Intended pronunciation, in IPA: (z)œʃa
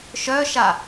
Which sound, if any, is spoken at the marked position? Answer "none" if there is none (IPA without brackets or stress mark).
ʃ